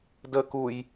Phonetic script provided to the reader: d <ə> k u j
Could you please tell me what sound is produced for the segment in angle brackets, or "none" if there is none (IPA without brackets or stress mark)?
ə